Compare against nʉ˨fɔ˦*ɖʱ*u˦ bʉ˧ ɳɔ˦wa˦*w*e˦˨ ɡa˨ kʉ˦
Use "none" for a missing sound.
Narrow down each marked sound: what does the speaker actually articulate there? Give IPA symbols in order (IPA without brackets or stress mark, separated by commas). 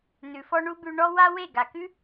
ɳ, w